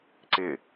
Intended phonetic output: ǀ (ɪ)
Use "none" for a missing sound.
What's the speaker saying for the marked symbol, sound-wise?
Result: ɪ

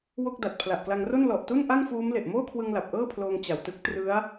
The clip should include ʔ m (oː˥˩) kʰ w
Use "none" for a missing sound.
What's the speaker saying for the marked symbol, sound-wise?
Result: oː˥˩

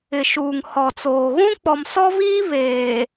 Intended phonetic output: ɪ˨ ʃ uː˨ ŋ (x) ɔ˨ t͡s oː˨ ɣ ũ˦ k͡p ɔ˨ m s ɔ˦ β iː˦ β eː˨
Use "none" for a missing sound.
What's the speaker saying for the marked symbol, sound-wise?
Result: h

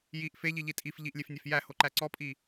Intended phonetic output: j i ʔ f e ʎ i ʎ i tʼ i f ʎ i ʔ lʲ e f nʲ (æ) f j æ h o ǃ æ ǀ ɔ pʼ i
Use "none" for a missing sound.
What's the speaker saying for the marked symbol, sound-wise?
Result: æ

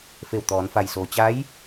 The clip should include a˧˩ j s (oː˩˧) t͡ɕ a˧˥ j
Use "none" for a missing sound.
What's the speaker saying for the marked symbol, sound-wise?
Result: oː˩˧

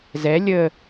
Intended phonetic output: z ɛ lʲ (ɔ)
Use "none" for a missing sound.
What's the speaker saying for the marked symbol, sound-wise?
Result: ə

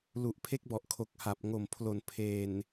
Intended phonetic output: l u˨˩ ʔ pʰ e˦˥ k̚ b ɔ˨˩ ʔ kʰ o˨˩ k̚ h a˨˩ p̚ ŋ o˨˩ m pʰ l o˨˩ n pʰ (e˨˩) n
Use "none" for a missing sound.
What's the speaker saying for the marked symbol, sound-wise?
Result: eː˨˩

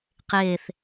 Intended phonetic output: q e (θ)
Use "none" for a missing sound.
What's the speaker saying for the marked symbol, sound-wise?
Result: θ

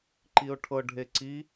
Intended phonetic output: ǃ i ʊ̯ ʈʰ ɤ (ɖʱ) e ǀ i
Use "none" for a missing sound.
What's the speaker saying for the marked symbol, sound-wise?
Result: ɖʱ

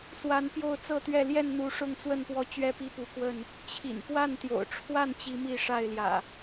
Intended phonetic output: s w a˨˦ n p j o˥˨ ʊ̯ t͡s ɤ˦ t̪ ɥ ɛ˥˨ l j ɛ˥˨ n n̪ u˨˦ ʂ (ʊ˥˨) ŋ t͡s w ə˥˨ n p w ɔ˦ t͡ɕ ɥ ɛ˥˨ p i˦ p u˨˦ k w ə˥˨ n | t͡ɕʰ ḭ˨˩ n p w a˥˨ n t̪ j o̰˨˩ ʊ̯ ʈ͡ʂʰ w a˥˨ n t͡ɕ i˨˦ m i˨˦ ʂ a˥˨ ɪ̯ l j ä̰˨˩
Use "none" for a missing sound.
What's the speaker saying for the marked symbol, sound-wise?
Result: ʊ˥˨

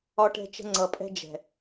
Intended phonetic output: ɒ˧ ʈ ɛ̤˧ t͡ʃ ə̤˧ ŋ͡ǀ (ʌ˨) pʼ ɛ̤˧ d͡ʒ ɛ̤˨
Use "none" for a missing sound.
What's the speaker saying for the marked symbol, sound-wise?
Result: ʌ˨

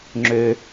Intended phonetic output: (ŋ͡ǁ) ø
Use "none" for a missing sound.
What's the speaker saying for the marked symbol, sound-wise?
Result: ŋ͡ǁ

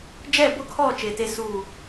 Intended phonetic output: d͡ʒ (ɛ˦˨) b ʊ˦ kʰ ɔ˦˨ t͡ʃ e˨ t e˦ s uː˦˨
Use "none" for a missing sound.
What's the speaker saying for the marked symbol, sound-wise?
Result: ɛ˦˨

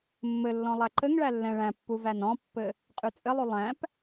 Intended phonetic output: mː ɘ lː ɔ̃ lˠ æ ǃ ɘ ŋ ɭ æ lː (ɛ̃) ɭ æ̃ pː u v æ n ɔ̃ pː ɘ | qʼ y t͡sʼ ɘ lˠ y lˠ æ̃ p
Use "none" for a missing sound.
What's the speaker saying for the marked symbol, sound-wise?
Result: ɛ̃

